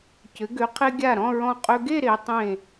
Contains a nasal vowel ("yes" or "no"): yes